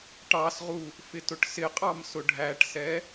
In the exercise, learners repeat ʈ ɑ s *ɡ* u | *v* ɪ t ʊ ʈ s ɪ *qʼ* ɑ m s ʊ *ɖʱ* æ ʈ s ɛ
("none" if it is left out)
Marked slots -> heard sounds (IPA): ʁ, f, qʼ, ɖʱ

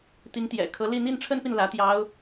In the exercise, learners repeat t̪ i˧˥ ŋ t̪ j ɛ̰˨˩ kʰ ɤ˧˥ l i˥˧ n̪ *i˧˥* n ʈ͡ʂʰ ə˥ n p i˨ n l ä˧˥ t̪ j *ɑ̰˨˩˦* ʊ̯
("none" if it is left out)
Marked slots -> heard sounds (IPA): i˥˩, ɑ˧˥

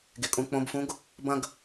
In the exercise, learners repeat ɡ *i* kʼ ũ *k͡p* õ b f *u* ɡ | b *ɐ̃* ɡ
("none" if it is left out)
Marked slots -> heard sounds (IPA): e, k͡p, ũ, ɐ̃

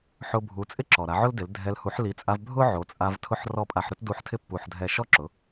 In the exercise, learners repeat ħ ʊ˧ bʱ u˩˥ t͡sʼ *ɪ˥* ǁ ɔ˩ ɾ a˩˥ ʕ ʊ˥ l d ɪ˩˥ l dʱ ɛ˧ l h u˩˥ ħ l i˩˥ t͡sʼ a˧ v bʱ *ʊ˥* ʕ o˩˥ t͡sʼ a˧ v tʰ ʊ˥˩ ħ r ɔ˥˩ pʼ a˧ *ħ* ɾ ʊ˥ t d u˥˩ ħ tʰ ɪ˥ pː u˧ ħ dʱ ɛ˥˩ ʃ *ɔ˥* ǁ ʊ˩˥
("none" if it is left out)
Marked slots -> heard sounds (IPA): ɪ˥, ʊ˥, ħ, ɔ˥

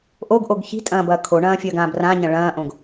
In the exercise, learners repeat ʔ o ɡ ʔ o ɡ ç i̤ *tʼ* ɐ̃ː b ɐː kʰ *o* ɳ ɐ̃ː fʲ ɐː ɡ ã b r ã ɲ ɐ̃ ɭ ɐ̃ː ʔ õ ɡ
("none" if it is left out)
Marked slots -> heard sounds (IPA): tʼ, o

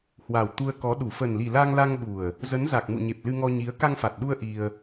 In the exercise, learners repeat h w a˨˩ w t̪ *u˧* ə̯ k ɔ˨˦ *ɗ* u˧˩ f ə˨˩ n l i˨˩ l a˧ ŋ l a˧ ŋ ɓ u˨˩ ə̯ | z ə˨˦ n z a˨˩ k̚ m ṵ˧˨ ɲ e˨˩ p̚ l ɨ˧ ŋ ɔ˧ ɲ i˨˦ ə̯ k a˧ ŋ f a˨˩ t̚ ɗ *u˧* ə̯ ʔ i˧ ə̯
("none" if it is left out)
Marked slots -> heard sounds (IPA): u˧, ɗ, u˧

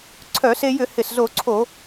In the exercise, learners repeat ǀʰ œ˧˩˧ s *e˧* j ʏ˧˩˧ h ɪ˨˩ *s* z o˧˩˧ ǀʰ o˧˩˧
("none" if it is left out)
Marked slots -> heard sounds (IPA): e˧, s

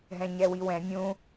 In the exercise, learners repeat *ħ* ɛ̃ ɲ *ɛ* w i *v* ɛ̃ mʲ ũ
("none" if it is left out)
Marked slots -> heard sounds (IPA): ɦ, ɛ, w

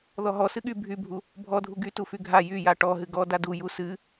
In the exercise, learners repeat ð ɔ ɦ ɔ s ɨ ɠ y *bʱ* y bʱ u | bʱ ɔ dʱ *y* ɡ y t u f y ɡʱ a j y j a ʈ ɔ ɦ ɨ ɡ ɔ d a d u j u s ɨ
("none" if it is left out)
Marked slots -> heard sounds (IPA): bʱ, u

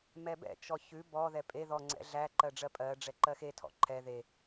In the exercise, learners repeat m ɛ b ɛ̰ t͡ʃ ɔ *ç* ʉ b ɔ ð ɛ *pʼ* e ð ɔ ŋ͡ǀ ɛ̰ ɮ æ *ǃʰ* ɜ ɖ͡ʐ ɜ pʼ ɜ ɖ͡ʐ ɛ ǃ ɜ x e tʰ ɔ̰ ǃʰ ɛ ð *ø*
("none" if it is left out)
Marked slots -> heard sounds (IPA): ç, pʼ, ǃ, e

